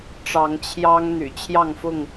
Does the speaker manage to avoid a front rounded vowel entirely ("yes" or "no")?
no